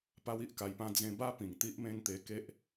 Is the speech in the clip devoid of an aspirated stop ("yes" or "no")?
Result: yes